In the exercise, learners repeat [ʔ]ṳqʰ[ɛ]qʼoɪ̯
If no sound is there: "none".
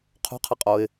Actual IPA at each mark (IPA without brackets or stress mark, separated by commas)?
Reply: qʰ, ɛ